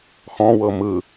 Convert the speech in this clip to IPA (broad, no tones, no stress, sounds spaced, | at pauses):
x ɔ̃ w ɤ m ɯ